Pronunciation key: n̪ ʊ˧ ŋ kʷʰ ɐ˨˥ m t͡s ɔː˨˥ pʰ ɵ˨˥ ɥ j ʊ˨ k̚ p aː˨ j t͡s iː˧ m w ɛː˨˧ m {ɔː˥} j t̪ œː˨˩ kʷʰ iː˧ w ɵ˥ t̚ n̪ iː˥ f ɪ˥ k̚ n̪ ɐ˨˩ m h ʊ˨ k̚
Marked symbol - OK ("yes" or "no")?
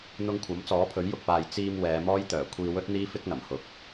yes